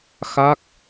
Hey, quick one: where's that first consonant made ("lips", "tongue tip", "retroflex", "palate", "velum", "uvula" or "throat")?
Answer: velum